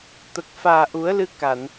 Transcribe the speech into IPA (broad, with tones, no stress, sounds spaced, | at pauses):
t̪ ə˨˩ k̚ f aː˨˩ ʔ u˨˩˦ ə̯ l ɨ˧ k a˨˩˨ n